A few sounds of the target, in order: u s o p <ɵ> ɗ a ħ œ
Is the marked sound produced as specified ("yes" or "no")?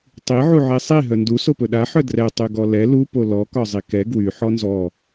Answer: yes